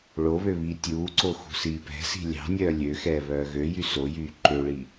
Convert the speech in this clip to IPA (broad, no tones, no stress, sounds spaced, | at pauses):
ɭ o β ø β iː tʲ uː ǀ o x ṳ s iː p ɛ̤ s i̤ lʲ ɑ̤ nʲ œː lʲ ø x ɛː β œː ɣ ø j y s o j yː ǃ ø ɭ i